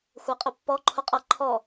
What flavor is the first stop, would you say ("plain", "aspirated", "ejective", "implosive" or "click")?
ejective